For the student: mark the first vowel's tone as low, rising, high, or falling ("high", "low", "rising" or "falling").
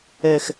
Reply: falling